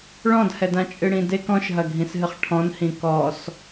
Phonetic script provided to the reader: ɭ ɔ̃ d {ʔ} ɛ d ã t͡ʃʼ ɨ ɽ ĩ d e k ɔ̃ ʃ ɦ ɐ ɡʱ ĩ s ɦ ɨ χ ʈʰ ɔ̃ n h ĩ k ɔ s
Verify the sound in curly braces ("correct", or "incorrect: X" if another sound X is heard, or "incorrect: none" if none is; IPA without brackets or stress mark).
incorrect: h